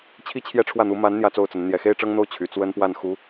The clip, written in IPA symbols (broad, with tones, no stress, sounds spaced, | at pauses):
t͡ɕʰ i˥˧ t͡ɕʰ j ɛ˥˧ ʈ͡ʂʰ w ä˥˩ n̪ u˧˥ m a˧˥ n n̪ j ä˥˧ t͡s o˥˩ ʊ̯ t͡s ə˧˥ n n̪ j ɛ˨˩ x e˥ ɪ̯ ʈ͡ʂ ɤ˥ ŋ n̪ o˥˩ ʊ̯ t͡ɕʰ y˨˩ t͡s w ə˥ n p w a˥˩ n x u˧˥